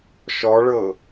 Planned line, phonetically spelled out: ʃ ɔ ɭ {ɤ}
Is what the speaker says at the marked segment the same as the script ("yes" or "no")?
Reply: yes